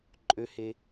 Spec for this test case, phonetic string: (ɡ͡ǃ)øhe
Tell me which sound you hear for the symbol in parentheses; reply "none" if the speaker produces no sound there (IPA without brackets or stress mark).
ǃʼ